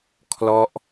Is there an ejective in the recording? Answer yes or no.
no